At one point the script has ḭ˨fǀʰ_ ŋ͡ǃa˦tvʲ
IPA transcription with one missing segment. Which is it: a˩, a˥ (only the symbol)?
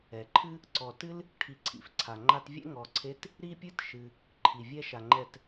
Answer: a˩